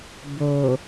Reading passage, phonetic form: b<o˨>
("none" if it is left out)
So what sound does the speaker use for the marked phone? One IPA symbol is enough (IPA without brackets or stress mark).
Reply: o˨